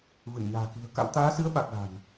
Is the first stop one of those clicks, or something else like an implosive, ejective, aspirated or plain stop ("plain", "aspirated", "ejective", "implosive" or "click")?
plain